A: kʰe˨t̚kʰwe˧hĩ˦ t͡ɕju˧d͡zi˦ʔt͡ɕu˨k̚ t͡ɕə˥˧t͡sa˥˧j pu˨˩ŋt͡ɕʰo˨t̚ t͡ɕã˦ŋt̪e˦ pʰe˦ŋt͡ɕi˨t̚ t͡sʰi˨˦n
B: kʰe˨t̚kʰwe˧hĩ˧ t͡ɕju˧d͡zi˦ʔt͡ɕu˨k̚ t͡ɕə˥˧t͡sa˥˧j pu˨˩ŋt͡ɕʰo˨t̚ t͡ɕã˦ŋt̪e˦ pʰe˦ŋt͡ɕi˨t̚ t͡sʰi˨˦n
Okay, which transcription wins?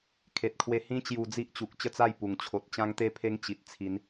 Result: A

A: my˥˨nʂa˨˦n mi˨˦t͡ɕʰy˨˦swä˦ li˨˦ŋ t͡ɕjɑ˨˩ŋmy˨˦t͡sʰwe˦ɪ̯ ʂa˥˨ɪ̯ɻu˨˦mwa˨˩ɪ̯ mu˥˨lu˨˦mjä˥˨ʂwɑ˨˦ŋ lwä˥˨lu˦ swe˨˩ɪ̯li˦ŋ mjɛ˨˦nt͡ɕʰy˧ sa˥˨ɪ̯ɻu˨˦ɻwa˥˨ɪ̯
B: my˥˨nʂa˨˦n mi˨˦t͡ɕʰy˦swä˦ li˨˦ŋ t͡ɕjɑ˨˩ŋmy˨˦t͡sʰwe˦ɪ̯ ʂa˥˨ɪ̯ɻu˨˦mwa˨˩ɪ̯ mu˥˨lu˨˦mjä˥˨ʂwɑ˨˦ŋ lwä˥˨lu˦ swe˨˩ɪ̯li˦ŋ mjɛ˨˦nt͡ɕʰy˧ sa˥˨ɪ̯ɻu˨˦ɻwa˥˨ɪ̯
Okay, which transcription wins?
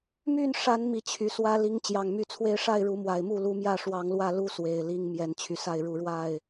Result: A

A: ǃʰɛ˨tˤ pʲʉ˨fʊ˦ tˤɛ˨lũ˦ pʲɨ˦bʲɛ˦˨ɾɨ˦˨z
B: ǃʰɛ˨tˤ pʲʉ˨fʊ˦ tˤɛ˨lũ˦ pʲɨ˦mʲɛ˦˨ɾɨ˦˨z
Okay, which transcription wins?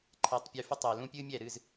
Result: B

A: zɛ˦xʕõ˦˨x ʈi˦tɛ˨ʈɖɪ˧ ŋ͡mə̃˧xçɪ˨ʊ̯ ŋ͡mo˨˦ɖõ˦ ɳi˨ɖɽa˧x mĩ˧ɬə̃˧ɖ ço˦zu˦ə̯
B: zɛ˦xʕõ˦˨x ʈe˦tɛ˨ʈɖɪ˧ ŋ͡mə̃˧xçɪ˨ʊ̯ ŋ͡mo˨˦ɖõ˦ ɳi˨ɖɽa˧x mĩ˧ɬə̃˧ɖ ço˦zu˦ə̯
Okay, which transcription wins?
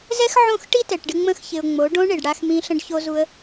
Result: A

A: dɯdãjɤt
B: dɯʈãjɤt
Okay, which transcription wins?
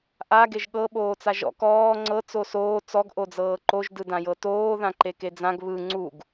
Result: A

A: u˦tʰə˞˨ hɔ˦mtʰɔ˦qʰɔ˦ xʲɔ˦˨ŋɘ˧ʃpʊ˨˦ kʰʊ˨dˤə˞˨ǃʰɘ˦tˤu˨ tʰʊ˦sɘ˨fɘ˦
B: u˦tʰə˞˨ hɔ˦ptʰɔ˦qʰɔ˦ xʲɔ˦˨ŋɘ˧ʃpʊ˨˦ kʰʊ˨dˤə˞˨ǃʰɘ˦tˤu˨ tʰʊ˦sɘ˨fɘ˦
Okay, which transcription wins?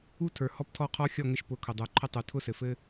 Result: B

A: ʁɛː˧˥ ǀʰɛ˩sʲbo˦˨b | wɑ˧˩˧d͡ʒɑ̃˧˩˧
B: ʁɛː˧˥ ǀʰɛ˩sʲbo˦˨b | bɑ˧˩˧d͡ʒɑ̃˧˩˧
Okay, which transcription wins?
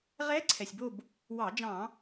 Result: A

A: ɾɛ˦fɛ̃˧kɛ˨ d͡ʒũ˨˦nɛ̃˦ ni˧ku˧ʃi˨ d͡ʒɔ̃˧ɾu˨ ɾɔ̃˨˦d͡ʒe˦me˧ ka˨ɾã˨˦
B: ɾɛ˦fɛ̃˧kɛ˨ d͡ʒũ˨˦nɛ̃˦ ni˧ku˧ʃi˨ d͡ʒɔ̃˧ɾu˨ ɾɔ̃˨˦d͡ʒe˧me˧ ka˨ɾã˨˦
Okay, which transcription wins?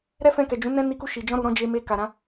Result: B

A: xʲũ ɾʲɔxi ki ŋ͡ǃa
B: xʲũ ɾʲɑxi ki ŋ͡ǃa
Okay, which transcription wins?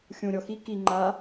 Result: A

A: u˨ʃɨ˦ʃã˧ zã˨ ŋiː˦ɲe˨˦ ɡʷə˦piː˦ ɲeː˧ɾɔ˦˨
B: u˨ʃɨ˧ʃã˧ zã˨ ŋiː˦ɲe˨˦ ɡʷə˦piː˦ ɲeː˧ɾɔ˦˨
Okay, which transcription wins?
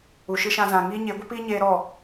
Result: A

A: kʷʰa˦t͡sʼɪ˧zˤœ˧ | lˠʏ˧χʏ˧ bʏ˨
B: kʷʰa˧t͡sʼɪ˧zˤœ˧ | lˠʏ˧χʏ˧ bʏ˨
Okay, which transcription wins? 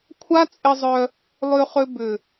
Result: A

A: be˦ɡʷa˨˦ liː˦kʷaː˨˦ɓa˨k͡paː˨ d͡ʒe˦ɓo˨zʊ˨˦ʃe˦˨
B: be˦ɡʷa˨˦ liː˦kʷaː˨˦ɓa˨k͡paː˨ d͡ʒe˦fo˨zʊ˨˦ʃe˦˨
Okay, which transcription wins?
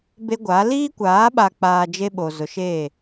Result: A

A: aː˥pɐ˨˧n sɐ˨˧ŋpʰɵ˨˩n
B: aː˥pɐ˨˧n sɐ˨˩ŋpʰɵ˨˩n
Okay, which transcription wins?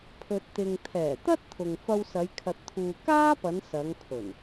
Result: A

